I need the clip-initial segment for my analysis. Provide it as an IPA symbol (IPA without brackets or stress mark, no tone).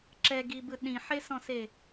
ǁ